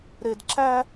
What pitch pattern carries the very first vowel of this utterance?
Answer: low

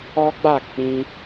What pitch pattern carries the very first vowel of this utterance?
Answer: high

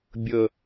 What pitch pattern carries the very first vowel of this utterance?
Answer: low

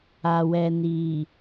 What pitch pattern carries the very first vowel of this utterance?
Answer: low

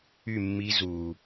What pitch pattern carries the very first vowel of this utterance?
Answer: falling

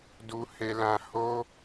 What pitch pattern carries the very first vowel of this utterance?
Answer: high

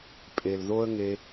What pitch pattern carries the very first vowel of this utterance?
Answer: low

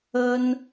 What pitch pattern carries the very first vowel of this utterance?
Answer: high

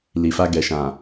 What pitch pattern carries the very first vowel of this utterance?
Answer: low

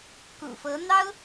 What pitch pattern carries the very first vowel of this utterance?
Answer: low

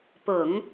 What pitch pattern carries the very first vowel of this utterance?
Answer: low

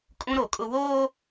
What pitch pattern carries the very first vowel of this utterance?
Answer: high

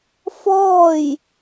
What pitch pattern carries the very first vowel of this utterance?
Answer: falling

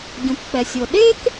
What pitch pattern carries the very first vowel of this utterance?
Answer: low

